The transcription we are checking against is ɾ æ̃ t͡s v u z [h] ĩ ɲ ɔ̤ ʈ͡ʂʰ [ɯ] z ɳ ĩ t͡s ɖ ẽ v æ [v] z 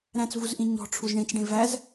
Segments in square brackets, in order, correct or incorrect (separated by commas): incorrect, incorrect, incorrect